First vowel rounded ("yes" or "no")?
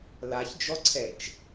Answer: no